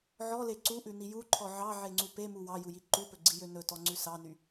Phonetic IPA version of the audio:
ʕ ɔ l e ǀ u ʔ ʉ n i j u ǃʰ ɔ ʕ ɑ ʕ e ŋ͡ǀ u p e m u w ɑ j u j i ǃ u p ɵ ɡ͡ǀ i j ø n ɵ t ɔ ŋ͡ǀ ʉ s ɑ n y

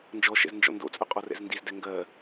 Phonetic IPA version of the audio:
n d͡ʒ ɔ ʃ ɛ̰ z n d͡ʒ ɔ̰ n d o̰ t͡sʼ œ qʼ ɔ r ɛ̰ z n d i z d ɛ ŋ ɡ ɜ

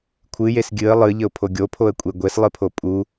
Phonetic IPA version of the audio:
kʷʰ ɨ j e s ɡʲ ɨ ə̯ lˠ ɨ ʎ ə ʊ̯ pʰ o ɡʲ o pʰ o ə̯ kʷʼ e ɡʷ e s lˠ ɨ pʰ o pʼ u

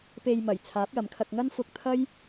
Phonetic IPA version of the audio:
p e˧ j m ɐ˨˩ j t͡sʰ aː˨˥ p̚ j ɐ˨ m kʰ ɐ˧ k̚ ŋ ɐ˥ n f ʊ˧ k̚ t̪ʰ ɐ˥ j

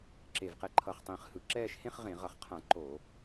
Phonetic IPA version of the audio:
ǁ e˧˩ v q ɛ˧ ǃʰ ʌ˧˩ χ tˤ ĩː˧˩ χ h ɯ˧˩˧ ǁ ɛː˥˧ ʃ h ẽ˥˧ χ ʁ ẽ˧˩˧ ʁ ʌ˧˩˧ χ qʰ ã˧˩˧ ǃ o˧˩˧

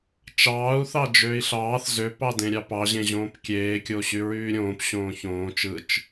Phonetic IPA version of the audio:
t͡ʃ ɑː u̯ θ ɑ d͡ʒ øː i̯ ɬ ɑː θ z ø p ɑ d ẽ ɾʲ ɑ p ɑ ʑ ẽ ʑ õː p kʲ eː kʲ o ɕ y ɹ yː ɾʲ õː p ɕ õː ç õː t͡ʃ ɯ t͡ʃ

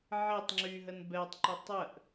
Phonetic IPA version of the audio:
ʕ e tˤ ŋ͡ǁ y ɦ ə n b ɛ tˤ ǃ ə tˤ ə ʔ

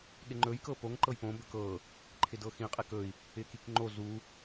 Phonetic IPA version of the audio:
ɠ ɪ ŋ͡ǃ ɵ j k ɤ p o ŋ ǃ ɤ j p õ b ɵ k ɤ | ǃʰ ɪ d ɤ x ĩ qʼ e k ɵ i̯ | ɪ k i k ŋ͡ǃ o z u

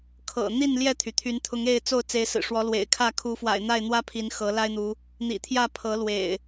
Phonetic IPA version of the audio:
kʰ ɤ̰˨˩ n̪ i˥˨ n l j ɛ˥˨ t̪ʰ y˩ t̪ʰ y˨˦ n t̪ʰ ʊ˨˦ ŋ e˥˨ ɪ̯ t͡s o˥˨ ʊ̯ t͡s e˨˦ ɪ̯ s ɹ̩˨˩ ʂ w ɔ˨˦ l w ḛ˨˩ ɪ̯ kʰ ä˥˨ kʰ u˨˦ f w a̰˨˩ ɪ̯ n̪ a˥˨ ɪ̯ n̪ w ä˦ pʰ i˨˦ n x ɤ˨˦ l a˦ ɪ̯ n̪ u˨˦ | n̪ ḭ˨˩ t̪ʰ j ä˥˨ pʰ ɤ˨˦ l w ḛ˨˩ ɪ̯

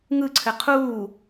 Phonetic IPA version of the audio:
ŋ ɯ ǀʰ ɘ qʰ uː

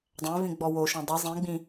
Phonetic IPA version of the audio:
dˤ æ̃ v ĩ ɡ͡b ɔ w o ʃ ɔ̃ dˤ ɨ zˤ ĩ ɡ͡b ĩ

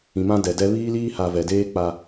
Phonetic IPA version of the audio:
ĩ˨ m ã˦ d ɛ˨ d ɛ˦ β iː˦ l iː˦ h a˨ v ɛ˨ d eː˦ k͡p a˨

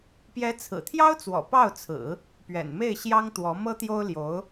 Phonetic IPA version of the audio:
p j ɛ˧˥ t͡sʰ ɹ̩˨˩ t̪ʰ j ɑ˥ ʊ̯ t͡s w ɔ̰˨˩ p ɑ˥˩ ʊ̯ t͡sʰ ɹ̩˨˩˦ | p ɥ ɛ̰˨˩ n m e˥˩ ɪ̯ ɕ j ɑ˥ ŋ t̪ w ɔ˧˥ m ɤ˥ t̪ j o˥ ʊ̯ l j o˧˥ ʊ̯

